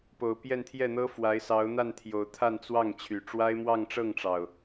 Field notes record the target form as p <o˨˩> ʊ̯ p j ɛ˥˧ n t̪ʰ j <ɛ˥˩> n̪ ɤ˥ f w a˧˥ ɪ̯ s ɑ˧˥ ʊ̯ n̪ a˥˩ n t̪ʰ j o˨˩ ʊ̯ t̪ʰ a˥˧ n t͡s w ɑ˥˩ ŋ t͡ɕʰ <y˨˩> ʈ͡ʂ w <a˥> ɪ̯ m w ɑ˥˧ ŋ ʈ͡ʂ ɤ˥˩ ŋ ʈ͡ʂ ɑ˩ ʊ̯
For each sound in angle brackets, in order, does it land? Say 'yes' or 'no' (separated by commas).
yes, yes, yes, yes